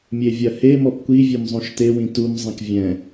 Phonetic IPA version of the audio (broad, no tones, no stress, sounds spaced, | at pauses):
mʲ e vʲ ɐ h e m ɔ p kʷ i vʲ e m zˤ ũ ʃ t e w ĩ t u m zˤ ɐ̃ k vʲ ɛ̃